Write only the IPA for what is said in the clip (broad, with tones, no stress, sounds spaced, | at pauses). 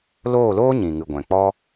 l oː˦˨ l oː˦ ɲ ĩ˨ ŋ ɨ˨ ɡʷ ɛ̃˨ k͡p ɔ˦